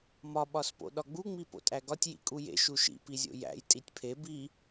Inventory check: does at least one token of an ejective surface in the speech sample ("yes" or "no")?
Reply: yes